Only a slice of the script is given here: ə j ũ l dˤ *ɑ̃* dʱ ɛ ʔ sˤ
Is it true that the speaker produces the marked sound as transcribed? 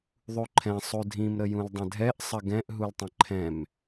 no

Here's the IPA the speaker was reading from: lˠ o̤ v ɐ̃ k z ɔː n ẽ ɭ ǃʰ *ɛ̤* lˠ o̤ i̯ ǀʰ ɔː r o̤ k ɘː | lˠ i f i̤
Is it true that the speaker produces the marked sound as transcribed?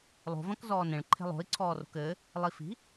no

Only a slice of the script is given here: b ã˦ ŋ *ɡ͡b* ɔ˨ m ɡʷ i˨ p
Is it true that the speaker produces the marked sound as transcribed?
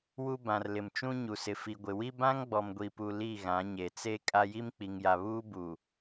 yes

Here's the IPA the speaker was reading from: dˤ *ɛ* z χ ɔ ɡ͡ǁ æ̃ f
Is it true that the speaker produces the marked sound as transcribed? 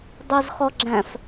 yes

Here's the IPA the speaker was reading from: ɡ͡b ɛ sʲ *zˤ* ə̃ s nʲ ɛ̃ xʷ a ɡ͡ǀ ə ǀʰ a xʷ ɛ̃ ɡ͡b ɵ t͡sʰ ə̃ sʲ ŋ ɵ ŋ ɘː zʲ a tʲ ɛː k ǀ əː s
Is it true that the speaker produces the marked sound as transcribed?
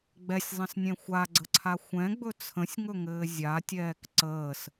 yes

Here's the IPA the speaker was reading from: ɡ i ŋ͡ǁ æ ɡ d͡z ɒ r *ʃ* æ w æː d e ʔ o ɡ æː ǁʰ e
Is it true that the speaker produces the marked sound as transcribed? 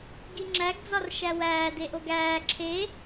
yes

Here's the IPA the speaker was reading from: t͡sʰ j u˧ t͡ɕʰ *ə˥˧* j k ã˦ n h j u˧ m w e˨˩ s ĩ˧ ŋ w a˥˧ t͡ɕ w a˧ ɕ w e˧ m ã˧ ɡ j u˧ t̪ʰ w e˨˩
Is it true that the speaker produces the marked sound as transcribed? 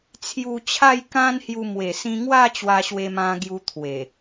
no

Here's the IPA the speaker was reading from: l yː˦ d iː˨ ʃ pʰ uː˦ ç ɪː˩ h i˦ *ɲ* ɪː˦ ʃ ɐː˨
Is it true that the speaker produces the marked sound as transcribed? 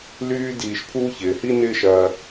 no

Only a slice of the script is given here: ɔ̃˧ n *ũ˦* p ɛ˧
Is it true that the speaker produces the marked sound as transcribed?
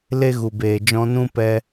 yes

